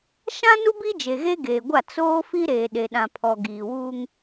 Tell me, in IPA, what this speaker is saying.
ʃ ã˦ n u˦ b i˦ d͡ʒ e˨ ɣ e˦ ɡ eː˨ ɡʷ a˦˨ t͡s oː˦ f i˦ ɾ eː˨ ɗ e˨ ɗ ã˨ pʰ ɔ˨ ɡ iː˨ w uː˦ ŋ

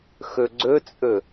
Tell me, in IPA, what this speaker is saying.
x ɵ ɡ͡ǀ ɵ t͡sʼ ɵ

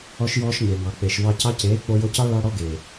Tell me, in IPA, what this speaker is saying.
ɔ˧ ʃ j ɔː˧ ʃ ɲ e˨ ŋ ɑ˨ k͡p e˨ ʃ v ɑ˧ c ɑ˧ c eː˨˦ k͡p o˧ j o˧ c ɑ˦ ɭ ɑ˧ ɽ ɔ˧ ɡ eː˨

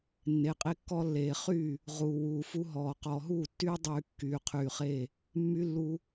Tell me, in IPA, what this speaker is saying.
nː e˨˦ qʼ e˦ kː ɔ˦ lː eː˨ χ y˦˨ | ʁ uː˨ w uː˨ f u˦ ɦ ɔː˨ q ɔː˨ ɦ uː˦˨ tː yː˦ dˤ yː˨ kː yː˨ qʰ yː˨ χ e˦˨ | mː y˦ lː u˦

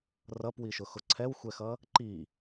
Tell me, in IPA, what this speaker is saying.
r ʌ p w i ʃ ʊ x ʊ ǀʰ ɛ w xʷ ɛ x ʌ | ǃ i

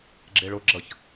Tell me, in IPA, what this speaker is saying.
ɡ͡ǁ e ɭ o ɡ͡ǁ ʌ ç

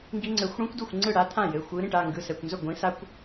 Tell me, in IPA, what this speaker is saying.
ŋ ɡ i˦˥ ŋ͡ǀ ɘ˨˦ xʷ ɽ ĩ˦˥ kʷ d u˥˩ xʷ ŋ͡ǀ ɯ˥˩ ɽ a˦˥ t̪ʰ ã˥˩ j ɘ˩˧˩ xʷ ɯ˨˦ ɾ ĩ˩˧˩ ʈ a˩˧˩ ŋ ɡ ɯ˩˧˩ s ɛ˩˧˩ kʷ n z ɵ˥˩ ɡʷ ĩ˨˦ s a˦˥ kʷ

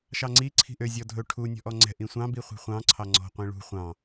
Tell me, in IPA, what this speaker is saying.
ʃ ɑ ŋ͡ǀ i ǀʰ i̤ ʔ ø zʲ ɔ dʱ ɵ ʈʰ u nʲ ɔ̤ ʔ ɔ ŋ͡ǀ ɛ̤ ʔ ĩ sʷ ɑ̃ b i χʷ i̤ χʷ ɑ̃ ǀʰ ɑ ŋ͡ǀ ɔ̤ qʷ ĩ ɭ ṳ χʷ ɑ̃

